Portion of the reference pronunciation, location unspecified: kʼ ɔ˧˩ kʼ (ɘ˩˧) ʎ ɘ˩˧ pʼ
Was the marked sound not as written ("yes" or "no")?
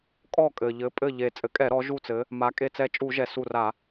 yes